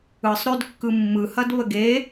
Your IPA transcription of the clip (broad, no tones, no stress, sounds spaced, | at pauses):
ɯ sˤ ɾ ø d kː ɯ mː ɯ h ɐ d β ə ɡ e